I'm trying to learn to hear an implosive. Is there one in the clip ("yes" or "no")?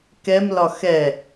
no